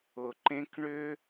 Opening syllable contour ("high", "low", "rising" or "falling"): low